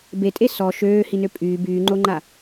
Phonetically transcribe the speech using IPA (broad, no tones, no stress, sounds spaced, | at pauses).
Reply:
b e tʼ e s ɔ ʃ øː h i n ø pʼ yː b yː ŋ͡ǃ o ŋ͡ǃ a